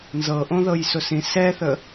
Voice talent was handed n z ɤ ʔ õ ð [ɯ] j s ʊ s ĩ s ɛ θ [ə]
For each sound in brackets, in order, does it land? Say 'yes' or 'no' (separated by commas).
no, yes